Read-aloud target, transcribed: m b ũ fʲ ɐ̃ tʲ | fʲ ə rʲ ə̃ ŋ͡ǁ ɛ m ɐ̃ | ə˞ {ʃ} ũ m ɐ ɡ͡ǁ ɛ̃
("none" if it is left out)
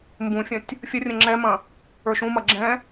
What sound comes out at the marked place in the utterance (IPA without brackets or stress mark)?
ʃ